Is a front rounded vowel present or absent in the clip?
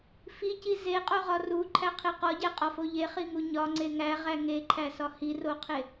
absent